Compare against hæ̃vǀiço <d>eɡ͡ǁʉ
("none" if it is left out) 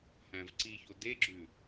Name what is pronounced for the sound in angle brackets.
d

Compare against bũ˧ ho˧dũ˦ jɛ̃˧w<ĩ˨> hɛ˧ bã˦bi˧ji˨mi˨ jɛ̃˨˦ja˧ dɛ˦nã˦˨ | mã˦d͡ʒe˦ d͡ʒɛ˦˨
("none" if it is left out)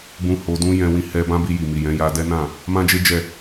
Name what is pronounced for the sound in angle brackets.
ĩ˧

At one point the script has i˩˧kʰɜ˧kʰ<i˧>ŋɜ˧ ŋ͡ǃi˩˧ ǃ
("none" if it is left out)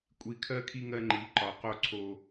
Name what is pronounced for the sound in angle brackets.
i˧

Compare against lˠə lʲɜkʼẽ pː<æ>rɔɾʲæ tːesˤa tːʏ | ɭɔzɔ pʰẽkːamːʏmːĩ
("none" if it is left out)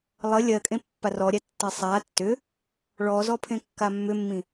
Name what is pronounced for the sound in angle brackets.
a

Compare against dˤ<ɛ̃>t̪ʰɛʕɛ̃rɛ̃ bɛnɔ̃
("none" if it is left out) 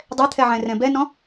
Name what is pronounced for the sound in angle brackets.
ɛ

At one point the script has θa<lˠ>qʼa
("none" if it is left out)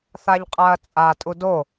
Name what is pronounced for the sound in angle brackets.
ʎ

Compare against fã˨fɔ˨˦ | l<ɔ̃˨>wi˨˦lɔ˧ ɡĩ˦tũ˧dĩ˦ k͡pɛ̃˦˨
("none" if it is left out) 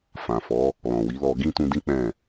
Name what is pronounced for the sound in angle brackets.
ɔ̃˨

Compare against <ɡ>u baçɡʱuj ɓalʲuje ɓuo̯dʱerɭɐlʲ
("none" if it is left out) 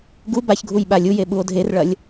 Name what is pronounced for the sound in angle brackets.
ɡ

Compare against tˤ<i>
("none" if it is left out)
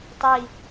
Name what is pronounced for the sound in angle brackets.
i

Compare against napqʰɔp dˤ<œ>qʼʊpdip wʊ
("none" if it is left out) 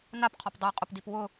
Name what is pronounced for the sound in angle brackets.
œ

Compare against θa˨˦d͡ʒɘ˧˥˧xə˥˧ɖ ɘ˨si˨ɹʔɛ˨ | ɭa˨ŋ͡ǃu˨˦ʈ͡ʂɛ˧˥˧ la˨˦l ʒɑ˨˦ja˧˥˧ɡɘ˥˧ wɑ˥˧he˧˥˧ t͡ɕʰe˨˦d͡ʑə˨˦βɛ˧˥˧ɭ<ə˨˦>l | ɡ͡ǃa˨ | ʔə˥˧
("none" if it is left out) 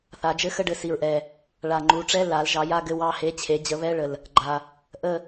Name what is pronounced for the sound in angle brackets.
ə˨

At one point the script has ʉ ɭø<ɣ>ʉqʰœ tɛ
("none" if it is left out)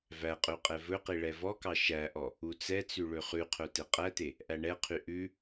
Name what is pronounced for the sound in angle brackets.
χ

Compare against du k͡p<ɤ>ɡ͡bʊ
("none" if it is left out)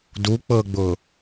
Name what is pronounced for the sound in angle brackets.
ɤ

